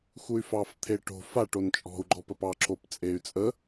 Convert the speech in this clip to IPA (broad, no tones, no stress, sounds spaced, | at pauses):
x u y̯ f ɑ f t̪ʰ e ʈ o̤ f a ʈ o n t͡ʃʼ ɔ̤ u̯ ɡ͡ǃ ɔ p ə p ɑ ǁ o p t͡sʼ e y̯ t͡sʼ ə